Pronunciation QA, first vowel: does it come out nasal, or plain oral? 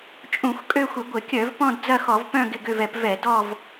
nasal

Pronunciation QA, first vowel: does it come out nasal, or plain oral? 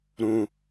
nasal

